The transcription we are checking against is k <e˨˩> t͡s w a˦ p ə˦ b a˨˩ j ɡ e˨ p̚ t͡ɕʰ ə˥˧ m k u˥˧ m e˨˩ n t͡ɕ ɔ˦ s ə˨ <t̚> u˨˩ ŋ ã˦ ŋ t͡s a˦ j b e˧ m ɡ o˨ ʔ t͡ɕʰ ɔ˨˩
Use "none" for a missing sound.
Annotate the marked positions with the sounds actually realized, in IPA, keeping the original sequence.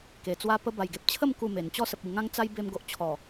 e˨˩, p̚

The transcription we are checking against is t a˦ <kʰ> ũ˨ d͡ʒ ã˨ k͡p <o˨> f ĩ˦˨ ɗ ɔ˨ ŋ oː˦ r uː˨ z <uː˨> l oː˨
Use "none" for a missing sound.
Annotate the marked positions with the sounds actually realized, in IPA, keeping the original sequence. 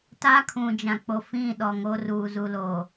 kʰ, o˨, u˨

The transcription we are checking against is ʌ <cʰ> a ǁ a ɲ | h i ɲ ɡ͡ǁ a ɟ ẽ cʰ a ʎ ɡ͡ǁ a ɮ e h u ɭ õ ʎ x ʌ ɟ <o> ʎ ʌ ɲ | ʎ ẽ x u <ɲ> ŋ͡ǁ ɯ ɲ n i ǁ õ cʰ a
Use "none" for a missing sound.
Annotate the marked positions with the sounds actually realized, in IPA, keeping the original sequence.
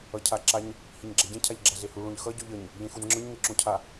cʰ, o, n

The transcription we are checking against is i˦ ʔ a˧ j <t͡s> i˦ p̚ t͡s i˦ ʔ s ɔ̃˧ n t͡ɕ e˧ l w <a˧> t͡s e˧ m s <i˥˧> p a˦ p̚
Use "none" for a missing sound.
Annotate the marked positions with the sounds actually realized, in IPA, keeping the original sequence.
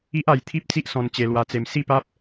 t̪ʰ, a˧, i˥˧

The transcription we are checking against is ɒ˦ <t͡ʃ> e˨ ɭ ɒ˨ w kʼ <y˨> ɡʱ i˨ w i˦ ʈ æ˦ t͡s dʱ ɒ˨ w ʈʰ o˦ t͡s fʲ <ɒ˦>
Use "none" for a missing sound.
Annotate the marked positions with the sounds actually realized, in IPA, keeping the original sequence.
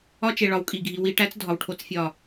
t͡ʃ, i˨, ɒ˦˨

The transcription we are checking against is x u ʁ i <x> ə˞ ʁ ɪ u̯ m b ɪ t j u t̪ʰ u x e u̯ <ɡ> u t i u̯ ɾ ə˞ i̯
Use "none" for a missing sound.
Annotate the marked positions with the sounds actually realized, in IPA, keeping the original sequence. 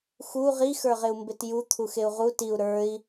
x, ʁ

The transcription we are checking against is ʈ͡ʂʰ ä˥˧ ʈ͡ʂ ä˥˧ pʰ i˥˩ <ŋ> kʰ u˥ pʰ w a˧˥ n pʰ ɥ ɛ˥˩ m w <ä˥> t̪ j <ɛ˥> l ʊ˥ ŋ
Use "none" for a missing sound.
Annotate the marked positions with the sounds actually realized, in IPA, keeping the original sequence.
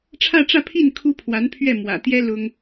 n, ä̰˨˩, ɛ˥

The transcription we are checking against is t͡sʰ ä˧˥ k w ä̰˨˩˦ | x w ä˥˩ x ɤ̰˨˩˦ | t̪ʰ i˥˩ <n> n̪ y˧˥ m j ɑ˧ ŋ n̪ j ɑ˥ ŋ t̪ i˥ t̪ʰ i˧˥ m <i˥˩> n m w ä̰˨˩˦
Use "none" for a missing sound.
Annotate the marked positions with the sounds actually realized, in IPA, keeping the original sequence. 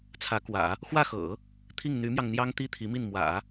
ŋ, i˥˩

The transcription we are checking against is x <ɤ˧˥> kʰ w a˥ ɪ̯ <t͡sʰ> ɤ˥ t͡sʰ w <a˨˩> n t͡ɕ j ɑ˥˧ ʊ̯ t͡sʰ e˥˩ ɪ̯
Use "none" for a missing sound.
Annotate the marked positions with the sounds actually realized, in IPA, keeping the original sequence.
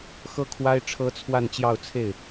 ɤ˥, ʈ͡ʂʰ, a˥˧

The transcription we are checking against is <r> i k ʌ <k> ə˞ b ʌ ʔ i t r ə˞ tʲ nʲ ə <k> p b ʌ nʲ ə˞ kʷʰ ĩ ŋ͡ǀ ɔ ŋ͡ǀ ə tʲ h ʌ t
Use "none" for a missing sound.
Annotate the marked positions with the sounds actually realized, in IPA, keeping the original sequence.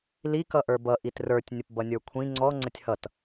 l, ʔ, none

